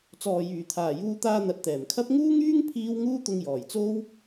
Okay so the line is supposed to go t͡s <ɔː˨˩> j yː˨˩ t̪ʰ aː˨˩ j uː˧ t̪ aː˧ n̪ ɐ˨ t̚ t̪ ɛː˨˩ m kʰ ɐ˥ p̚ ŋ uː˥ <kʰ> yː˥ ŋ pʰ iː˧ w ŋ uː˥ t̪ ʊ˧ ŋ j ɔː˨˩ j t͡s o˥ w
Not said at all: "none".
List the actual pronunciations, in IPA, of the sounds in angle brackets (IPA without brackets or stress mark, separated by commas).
ɔː˨, ŋ